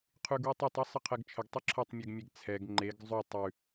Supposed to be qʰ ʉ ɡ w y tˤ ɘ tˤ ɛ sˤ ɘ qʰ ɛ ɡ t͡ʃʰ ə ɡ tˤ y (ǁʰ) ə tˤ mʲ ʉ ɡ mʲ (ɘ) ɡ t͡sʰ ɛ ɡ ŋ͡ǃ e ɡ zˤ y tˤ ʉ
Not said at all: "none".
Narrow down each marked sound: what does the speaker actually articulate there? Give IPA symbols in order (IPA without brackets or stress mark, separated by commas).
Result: ǁʰ, e